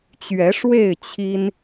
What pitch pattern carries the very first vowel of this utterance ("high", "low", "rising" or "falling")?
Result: rising